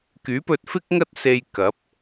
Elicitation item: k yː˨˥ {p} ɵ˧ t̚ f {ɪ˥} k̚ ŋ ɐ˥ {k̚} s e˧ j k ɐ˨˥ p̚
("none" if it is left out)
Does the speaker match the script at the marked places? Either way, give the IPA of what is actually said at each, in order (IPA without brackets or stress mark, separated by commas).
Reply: p, ɪ˥, t̚